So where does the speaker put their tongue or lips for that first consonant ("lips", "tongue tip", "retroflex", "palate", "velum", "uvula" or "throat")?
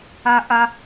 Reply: throat